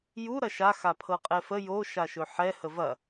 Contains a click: no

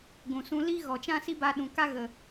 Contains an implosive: yes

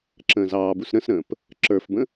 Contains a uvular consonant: no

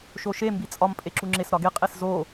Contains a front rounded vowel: no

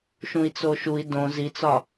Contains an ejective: no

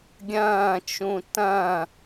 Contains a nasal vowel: yes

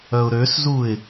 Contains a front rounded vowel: yes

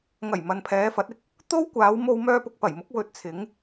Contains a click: no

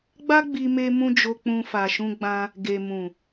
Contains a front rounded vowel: no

